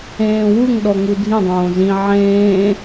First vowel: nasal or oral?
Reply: nasal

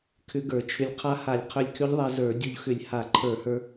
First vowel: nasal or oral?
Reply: oral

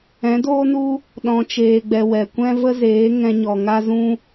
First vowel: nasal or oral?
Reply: nasal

